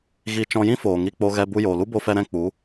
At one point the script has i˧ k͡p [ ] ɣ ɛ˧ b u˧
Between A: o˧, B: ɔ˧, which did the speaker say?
A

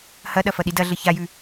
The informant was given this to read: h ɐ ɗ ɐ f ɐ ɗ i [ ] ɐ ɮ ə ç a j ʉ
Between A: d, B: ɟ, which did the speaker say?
A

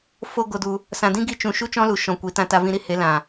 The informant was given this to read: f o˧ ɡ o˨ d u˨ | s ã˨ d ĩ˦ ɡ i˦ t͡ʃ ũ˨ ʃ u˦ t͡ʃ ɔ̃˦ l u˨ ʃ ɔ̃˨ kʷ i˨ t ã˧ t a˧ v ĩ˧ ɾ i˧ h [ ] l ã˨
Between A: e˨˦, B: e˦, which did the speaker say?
A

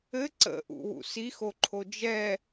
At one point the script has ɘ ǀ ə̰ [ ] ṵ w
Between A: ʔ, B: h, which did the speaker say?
A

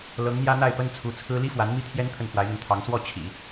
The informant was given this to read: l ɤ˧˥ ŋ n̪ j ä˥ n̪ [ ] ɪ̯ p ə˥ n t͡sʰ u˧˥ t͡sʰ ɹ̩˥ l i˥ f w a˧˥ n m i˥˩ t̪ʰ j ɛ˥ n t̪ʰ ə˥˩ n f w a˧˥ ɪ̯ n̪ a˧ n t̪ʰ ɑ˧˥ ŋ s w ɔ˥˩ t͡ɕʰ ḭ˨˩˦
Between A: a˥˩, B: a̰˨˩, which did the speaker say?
A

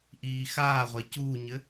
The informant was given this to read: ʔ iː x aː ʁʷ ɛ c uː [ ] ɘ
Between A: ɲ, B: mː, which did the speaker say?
A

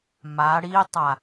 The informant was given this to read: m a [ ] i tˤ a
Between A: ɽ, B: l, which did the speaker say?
A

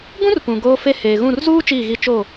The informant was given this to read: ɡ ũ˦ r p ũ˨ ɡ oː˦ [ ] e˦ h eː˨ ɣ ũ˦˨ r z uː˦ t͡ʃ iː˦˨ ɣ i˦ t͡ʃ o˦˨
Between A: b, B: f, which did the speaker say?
B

